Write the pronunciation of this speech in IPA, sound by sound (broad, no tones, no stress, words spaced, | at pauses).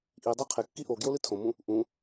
ʔi dˤaqʰekːi ʔo ɡjolɨtʰõmũ | ʔũ